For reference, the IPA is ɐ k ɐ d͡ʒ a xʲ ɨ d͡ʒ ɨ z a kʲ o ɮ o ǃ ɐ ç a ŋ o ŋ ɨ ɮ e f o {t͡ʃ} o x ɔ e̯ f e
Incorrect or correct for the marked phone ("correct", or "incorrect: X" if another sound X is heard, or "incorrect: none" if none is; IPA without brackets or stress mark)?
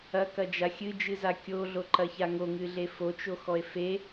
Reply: correct